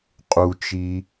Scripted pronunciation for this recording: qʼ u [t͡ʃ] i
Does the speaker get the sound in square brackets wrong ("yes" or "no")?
no